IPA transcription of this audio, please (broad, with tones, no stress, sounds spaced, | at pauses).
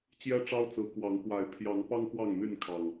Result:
t͡ɕ j ɛ˦ ʈ͡ʂ ɑ˦ ʊ̯ t͡s ɹ̩˨˦ k w ɑ˨˦ ŋ k w a˨˩ ɪ̯ pʰ j ɑ˨˦ ŋ p ɑ˦ ŋ x w ɑ˥˨ ŋ n̪ y˥˨ n kʰ ɑ˨˩ ŋ